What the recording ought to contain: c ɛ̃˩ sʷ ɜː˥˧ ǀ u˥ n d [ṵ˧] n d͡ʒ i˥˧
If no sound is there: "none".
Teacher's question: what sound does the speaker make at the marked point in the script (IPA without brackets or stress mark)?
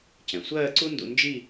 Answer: ṵ˧